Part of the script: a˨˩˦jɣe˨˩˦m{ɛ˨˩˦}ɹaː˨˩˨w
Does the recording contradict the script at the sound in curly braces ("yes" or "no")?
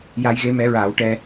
no